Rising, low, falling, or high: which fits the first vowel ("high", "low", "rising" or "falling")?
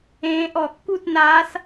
rising